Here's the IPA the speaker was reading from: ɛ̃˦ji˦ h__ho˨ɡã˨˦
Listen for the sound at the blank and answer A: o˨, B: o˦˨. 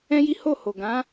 B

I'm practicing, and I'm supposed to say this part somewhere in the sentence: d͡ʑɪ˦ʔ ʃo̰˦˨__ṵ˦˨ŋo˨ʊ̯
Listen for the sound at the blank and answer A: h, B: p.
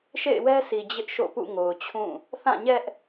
B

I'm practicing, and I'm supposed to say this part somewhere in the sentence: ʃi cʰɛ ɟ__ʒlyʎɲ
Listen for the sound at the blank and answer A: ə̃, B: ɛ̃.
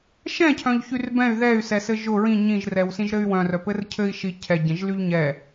B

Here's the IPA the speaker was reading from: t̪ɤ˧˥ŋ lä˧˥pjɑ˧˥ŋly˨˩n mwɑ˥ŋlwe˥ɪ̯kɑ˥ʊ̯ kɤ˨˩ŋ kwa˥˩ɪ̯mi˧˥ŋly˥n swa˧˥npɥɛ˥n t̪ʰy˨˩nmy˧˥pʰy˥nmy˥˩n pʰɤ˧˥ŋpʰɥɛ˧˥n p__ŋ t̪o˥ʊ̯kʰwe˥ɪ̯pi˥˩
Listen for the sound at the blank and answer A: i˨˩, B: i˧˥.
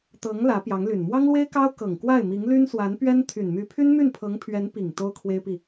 A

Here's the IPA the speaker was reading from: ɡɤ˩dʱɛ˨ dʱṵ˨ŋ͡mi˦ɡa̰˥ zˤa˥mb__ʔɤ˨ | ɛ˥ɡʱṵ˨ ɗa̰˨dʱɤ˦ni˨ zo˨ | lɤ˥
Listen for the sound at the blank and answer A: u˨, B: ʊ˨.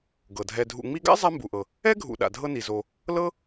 A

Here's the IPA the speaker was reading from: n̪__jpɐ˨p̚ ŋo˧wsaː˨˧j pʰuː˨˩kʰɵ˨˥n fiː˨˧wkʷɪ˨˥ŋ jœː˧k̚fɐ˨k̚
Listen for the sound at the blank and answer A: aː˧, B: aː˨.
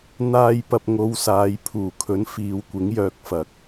A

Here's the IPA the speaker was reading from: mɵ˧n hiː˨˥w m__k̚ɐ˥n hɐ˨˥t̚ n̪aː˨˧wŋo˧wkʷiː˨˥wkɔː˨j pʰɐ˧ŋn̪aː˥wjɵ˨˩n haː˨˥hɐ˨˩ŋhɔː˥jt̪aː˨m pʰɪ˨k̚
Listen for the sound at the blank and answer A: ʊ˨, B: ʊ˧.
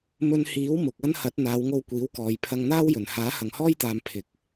A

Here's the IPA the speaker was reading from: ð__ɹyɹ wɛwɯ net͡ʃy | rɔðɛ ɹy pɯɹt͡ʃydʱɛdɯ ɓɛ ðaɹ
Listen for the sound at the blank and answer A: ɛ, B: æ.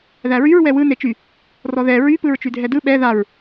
B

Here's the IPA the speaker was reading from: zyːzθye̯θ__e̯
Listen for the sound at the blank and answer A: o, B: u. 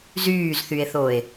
A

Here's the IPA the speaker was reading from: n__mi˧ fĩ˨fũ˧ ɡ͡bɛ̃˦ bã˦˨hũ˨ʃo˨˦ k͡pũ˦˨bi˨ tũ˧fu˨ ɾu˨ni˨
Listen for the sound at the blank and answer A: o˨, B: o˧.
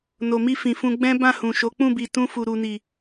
A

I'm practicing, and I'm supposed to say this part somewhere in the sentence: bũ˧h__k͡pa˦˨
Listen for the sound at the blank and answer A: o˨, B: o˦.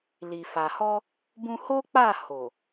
B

